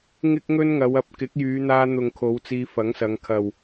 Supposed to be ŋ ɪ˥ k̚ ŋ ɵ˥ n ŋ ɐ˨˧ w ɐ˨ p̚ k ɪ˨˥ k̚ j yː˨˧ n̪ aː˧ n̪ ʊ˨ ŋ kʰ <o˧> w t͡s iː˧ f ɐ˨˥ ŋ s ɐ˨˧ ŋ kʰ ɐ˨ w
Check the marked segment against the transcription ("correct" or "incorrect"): incorrect